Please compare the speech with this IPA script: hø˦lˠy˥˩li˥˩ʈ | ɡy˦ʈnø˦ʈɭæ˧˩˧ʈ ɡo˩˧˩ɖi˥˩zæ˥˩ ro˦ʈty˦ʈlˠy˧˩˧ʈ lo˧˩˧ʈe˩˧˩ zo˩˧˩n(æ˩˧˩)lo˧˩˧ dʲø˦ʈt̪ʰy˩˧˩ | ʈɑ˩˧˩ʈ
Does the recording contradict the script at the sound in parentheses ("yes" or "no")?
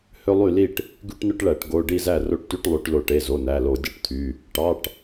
no